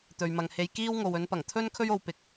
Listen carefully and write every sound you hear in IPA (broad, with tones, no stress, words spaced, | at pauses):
t̪ɵ˨ɥmɐ˨ŋhe˧j kiː˥w ŋo˨wɵ˨˥npɐ˨˩ŋ t̪ʰɵ˥n kʰɵ˥ɥo˨˧w pɪ˨k̚